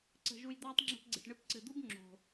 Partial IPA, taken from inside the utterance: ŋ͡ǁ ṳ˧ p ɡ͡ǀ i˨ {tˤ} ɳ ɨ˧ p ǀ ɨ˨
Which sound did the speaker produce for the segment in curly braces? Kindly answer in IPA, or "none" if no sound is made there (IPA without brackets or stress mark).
ʈ